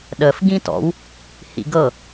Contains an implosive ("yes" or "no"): yes